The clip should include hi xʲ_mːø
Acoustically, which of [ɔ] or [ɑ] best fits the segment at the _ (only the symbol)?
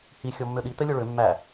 ɔ